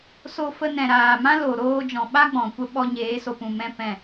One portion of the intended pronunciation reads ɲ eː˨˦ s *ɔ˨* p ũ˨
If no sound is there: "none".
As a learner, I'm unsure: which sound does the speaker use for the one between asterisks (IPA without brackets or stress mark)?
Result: o˨